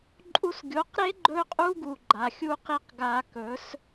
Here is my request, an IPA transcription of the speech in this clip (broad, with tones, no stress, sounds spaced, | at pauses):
ǃʼ u˧ s ɡʲ o˨˦ q ɾ e˦ ɡ͡ǃ ɵ˦ qʼ u˦ ɡ u˨ ɡ͡ǃ a˨ xʲ u˦ q i˦ q ɡ a˧ k ɵ˨˦ s